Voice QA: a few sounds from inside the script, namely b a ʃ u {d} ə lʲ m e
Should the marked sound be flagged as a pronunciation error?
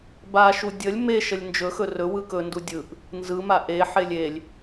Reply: yes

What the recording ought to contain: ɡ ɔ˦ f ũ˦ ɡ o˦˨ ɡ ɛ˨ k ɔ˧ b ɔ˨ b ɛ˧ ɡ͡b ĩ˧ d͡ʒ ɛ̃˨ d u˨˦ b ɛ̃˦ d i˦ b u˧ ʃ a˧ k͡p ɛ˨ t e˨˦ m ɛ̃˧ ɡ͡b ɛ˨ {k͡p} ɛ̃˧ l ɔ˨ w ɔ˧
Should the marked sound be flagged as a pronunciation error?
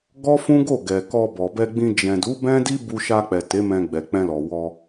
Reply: no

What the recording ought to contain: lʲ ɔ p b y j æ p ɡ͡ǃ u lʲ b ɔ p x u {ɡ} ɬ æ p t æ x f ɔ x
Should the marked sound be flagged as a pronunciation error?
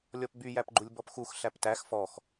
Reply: yes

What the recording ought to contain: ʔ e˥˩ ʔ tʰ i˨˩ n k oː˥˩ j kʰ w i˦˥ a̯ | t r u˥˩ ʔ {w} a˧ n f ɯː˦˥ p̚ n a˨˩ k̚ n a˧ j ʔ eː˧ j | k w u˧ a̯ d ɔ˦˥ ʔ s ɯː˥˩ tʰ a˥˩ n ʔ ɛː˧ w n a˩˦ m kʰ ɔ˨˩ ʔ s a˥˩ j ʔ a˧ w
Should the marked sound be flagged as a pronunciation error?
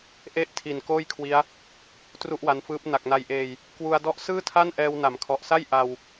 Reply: no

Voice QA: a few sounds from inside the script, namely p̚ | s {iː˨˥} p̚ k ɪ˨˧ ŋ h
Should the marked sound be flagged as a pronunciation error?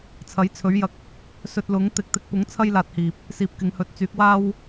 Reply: no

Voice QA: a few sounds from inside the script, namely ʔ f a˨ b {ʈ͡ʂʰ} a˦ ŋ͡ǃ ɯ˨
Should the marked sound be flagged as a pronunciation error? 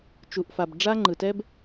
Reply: yes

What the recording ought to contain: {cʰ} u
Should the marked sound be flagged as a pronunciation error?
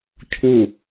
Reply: no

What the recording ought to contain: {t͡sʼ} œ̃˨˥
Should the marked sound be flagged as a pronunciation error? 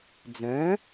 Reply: yes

